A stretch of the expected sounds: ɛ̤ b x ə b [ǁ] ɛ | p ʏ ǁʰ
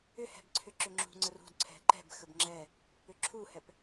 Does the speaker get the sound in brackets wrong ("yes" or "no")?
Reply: yes